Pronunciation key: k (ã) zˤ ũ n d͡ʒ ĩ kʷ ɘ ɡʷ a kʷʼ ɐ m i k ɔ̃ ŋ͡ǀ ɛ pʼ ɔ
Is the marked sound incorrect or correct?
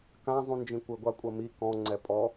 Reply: correct